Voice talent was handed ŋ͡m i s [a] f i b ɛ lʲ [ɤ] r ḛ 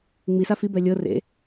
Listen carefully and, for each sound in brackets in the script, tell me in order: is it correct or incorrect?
correct, correct

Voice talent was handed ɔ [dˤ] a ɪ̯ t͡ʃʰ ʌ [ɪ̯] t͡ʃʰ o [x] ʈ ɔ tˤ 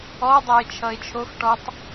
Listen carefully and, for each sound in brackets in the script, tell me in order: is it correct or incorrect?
correct, correct, correct

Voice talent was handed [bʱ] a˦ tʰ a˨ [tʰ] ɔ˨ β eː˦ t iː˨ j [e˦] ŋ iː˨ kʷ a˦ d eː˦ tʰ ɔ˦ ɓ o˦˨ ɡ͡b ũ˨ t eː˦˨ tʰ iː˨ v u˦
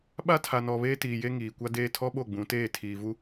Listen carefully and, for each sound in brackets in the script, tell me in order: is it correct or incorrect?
incorrect, incorrect, correct

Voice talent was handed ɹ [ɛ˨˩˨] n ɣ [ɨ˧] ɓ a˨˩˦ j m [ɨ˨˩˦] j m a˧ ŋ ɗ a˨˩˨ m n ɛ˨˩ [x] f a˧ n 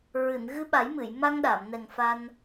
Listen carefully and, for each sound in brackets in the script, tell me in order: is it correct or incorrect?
incorrect, correct, incorrect, incorrect

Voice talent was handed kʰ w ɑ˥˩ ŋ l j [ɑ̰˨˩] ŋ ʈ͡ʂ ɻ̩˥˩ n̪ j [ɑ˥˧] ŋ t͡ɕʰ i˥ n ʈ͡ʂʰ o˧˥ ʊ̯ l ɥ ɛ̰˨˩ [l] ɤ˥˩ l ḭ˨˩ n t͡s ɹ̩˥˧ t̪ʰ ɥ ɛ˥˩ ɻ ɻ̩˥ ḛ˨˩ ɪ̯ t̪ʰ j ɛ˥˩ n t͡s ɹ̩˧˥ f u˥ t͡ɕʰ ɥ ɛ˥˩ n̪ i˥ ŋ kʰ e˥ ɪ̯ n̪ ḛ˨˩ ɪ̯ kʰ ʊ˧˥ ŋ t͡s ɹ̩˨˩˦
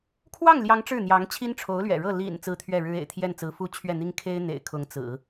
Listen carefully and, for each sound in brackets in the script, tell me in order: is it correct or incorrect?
incorrect, incorrect, incorrect

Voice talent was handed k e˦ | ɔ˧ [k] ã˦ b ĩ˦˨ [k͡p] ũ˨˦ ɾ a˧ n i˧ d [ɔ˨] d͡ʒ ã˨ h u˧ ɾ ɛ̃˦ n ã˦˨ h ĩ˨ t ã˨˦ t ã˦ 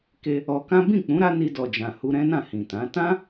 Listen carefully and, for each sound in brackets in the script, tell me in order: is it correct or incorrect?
correct, correct, correct

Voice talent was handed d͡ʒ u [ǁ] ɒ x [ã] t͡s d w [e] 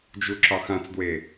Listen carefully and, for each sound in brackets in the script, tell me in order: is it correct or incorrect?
correct, correct, correct

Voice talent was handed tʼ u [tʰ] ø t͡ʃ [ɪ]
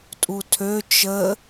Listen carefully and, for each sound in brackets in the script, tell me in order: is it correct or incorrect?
correct, incorrect

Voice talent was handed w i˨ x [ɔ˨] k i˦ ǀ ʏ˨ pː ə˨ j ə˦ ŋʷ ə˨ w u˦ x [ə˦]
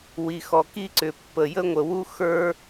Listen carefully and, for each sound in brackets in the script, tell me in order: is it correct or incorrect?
correct, incorrect

